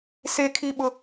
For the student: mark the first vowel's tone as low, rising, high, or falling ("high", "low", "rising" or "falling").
high